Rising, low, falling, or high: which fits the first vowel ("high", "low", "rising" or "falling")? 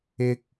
high